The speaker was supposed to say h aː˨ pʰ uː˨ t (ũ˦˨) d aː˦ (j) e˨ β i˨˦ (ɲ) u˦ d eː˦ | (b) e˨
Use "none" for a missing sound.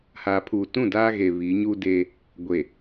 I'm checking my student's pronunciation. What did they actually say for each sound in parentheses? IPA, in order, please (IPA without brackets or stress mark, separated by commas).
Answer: ũ˦˨, ɣ, ɲ, ɡʷ